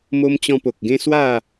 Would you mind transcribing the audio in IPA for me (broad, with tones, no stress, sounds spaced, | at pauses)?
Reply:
m o˧ m t͡ɕ ɔ̃˧ p o˨ k̚ ɡ ẽ˦ s w a˥˧